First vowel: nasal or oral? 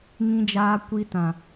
nasal